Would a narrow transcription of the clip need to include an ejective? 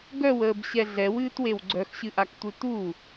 no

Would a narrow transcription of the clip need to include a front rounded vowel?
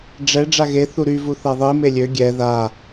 yes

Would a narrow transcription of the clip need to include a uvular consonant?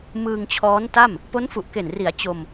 no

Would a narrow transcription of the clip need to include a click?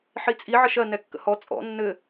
no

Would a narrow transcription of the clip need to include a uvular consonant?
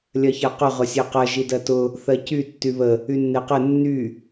yes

